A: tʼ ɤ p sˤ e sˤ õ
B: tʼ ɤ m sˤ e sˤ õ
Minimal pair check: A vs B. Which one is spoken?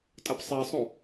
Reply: A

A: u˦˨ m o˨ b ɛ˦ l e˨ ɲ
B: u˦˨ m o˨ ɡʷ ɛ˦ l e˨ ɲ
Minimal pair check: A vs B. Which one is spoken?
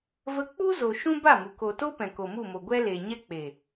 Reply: B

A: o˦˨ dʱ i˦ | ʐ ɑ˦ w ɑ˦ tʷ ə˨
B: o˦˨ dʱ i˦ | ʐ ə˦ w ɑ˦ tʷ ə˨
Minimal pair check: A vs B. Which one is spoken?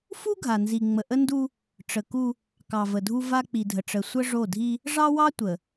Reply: A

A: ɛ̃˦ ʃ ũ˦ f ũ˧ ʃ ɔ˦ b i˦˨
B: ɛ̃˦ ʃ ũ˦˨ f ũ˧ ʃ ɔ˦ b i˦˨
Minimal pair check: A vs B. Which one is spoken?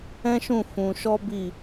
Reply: B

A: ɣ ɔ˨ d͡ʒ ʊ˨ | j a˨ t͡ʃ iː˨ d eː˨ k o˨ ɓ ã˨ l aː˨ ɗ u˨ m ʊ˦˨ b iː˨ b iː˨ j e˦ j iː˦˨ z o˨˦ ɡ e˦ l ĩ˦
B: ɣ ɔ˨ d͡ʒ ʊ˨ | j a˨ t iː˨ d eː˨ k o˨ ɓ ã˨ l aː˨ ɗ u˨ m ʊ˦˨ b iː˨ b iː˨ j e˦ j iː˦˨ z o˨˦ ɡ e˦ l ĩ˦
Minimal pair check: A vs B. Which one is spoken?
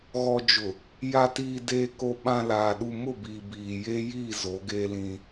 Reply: B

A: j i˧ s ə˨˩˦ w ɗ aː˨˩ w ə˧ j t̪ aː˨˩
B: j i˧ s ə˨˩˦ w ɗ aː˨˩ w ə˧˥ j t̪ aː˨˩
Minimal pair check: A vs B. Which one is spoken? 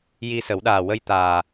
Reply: A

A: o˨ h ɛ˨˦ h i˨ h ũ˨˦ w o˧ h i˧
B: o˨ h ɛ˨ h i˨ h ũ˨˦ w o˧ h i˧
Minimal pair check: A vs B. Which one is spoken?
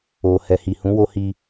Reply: B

